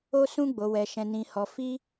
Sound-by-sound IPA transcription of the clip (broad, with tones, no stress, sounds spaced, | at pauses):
o˧ s ũ˧ ɡ͡b o˨ w ɛ˨ ʃ ɛ̃˨ n ĩ˨ h ɔ˨ f i˧